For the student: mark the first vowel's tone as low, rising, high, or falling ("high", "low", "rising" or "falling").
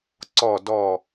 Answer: falling